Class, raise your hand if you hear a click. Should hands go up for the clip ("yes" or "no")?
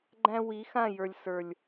yes